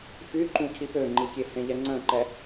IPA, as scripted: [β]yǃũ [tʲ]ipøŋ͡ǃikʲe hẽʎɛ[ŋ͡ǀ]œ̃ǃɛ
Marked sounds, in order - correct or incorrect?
incorrect, incorrect, correct

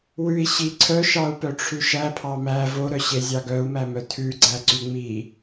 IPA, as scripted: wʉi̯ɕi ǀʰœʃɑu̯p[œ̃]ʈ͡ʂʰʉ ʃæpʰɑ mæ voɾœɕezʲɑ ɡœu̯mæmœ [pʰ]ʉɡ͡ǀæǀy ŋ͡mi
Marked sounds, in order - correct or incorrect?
incorrect, incorrect

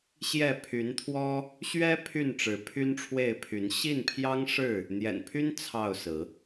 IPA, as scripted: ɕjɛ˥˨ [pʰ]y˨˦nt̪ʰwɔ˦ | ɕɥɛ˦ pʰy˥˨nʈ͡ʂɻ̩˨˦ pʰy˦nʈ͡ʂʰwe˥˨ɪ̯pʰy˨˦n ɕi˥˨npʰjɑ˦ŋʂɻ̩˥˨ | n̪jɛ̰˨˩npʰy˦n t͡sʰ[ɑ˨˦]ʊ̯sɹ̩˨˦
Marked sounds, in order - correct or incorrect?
correct, incorrect

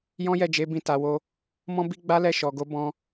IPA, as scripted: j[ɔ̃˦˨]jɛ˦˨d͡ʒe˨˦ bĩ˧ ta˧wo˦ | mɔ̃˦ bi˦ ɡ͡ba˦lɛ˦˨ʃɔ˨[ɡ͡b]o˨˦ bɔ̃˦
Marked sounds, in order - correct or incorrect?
incorrect, incorrect

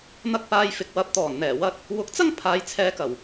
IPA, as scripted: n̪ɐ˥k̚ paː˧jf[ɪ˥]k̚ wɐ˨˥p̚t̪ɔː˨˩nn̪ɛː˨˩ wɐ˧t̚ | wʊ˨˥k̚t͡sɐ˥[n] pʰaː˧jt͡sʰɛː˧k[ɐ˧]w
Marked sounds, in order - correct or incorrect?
incorrect, incorrect, incorrect

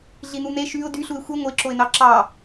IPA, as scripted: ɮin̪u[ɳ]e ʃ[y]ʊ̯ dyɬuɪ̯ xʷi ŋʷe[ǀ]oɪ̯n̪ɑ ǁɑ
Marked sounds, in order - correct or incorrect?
incorrect, correct, incorrect

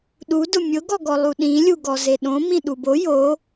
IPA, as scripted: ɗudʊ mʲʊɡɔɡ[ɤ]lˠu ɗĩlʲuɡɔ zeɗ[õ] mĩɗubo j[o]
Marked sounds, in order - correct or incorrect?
incorrect, correct, correct

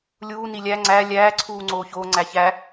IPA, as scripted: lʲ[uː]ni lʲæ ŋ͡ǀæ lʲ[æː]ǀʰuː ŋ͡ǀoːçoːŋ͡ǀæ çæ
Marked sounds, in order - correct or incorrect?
correct, correct

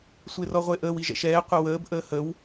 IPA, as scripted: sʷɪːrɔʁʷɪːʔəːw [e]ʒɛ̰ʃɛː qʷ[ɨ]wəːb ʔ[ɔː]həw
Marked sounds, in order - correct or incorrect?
incorrect, incorrect, incorrect

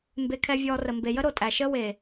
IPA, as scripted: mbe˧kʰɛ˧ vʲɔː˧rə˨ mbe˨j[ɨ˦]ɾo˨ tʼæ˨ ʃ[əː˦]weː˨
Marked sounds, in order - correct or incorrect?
incorrect, correct

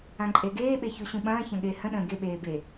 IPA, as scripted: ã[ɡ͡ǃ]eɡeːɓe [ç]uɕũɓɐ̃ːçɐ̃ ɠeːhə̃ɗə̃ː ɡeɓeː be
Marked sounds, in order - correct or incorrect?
incorrect, correct

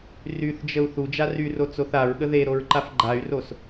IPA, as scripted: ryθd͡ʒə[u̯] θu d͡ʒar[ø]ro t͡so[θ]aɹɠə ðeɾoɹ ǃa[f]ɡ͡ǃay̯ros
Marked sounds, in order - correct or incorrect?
correct, incorrect, correct, correct

